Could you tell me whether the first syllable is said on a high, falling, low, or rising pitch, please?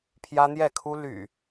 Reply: high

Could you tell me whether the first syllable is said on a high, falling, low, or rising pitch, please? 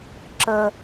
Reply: high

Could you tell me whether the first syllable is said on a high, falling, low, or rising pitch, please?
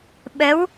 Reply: rising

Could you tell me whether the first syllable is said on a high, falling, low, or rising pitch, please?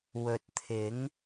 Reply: low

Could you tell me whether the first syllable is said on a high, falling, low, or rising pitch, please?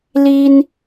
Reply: high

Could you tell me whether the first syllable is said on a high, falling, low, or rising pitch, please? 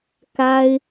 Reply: high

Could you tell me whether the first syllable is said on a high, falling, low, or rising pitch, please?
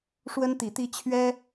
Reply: high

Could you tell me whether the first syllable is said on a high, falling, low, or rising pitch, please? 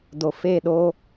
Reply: low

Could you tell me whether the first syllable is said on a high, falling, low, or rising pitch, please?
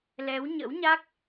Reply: rising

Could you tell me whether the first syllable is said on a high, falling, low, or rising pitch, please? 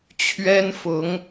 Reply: high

